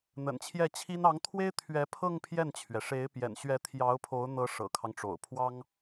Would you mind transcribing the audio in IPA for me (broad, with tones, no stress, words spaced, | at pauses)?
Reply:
n̪ə̰˨˩nt͡ɕʰjɛ˥˩t͡ɕʰi˥n ɑ˧˥ŋt̪ʰwe˥ɪ̯ t̪ʰɥɛ˧˥ pʰɤ˥˧ŋ pʰjɛ˥˩nt͡ɕʰɥɛ˩ ʂe˧˥ɪ̯ pjɛ̰˨˩nɕɥɛ˧˥ t̪ʰjɑ˧˥ʊ̯pʰo˧˥ʊ̯n̪ɤ˧˥ ʂɤ̰˨˩kʰɑ˦ŋʈ͡ʂo̰˨˩ʊ̯pʰwɑ˥ŋ